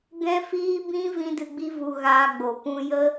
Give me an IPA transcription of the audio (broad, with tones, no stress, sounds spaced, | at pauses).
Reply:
ɡ ɛ̃˦ f iː˦ b ĩ˦ v ĩ˦ d ɨ˧ ɡ͡b i˦ v u˧ ɣ aː˧ ɡ͡b o˨ p ũ˧ j ə˦